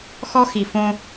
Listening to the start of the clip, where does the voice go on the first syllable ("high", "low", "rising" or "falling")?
high